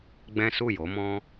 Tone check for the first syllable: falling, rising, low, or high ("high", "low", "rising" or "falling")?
high